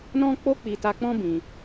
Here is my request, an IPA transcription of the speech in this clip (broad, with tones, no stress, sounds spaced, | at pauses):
n ɔ̃˦ k͡p o˦ k͡p i˧ t a˧ k͡p ɔ̃˦ b ĩ˧